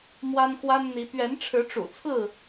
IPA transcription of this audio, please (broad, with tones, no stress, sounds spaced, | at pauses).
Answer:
m w a˦ n x w a˦ n n̪ i˨˦ p ɥ ɛ˨˦ n ʈ͡ʂʰ ɻ̩˨˦ ʈ͡ʂ ṵ˨˩ t͡sʰ ɹ̩˥˨